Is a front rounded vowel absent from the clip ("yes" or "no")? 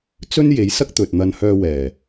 no